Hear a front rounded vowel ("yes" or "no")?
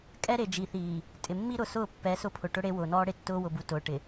no